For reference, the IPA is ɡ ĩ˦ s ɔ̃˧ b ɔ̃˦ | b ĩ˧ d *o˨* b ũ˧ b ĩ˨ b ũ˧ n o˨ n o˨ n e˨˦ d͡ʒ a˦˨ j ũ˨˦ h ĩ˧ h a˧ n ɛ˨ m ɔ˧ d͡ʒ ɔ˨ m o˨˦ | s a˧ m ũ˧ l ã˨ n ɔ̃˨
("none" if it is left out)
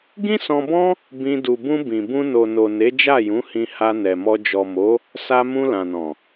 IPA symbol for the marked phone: u˨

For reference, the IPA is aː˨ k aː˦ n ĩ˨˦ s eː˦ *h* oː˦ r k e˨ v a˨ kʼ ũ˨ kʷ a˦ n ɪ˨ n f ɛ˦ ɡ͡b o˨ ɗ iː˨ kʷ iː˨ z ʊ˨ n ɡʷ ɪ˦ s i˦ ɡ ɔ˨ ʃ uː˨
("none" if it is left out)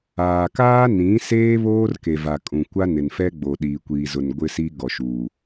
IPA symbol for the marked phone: β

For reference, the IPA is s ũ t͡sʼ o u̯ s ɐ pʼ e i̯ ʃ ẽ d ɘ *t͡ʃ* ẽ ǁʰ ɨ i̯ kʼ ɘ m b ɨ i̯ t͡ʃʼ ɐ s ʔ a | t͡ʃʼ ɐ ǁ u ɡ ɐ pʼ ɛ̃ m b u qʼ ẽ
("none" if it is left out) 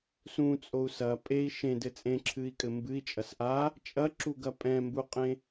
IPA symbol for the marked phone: t͡sʼ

